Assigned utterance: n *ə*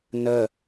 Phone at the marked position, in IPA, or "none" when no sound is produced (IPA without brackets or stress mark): ə